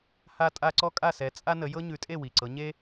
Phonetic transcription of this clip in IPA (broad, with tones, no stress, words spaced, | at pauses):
ha˥tʼa˥ ǀɔ˥kʼa˥˨sɛ˨˦ t͡sʼa˥nə˨˦ jɤ˥ɲʉ˨˦tʼe˥˨ wi˨˩ǀɤ˨˦ɲe˥